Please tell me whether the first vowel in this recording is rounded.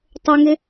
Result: yes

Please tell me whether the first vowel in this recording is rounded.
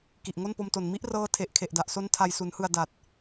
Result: no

